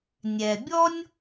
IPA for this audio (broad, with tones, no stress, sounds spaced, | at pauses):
nʲ ɛ˩ bʲ ɔ˥ nʲ